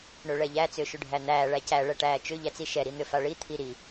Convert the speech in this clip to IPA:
ɳøɭɛʎæ t͡sʏːʃʏɖʱæn̪æː ɭæcæ ɭɛʈæːt͡ʃʏ ʎæt͡siʃɛ ɾin̪ʏfaɭi t̪ʰiɾi

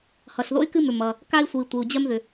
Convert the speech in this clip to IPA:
hʌ˩ɬðo̰˥y̯ kɨ˥mʏ˩ mʌ˩ | ka˥i̯sʷɨ˩i̯ tʷɨ˩u̯d͡ʑɜ˥m ðʏ˩

